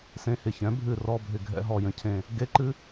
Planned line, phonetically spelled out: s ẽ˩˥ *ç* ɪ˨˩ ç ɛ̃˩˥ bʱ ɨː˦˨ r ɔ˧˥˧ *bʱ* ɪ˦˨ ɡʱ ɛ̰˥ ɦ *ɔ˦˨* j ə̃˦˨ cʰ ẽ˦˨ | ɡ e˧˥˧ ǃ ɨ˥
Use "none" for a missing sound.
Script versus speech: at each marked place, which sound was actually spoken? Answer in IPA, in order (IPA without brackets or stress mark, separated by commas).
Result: h, bʱ, ɔ˦˨